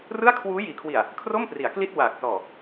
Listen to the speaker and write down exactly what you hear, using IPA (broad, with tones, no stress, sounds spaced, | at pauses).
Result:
r ɯ˥˩ a̯ kʰ w uː˦˥ j iː˩˦ kʰ w i˨˩ a̯ | kʰ r o˥˩ m p r i˩˦ a̯ k l i˥˩ t̚ w aː˨˩ k̚ s ɔː˨˩